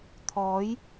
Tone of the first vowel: rising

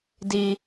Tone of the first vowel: low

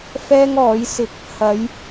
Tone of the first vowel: high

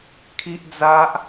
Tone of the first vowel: high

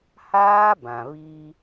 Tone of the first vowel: high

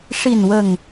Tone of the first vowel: low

